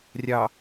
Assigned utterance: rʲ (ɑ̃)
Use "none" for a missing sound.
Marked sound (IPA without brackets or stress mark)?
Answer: ɑ